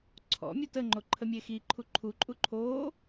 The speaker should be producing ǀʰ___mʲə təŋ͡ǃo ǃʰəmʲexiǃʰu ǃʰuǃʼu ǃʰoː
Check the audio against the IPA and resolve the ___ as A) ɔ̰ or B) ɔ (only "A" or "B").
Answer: A